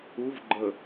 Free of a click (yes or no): no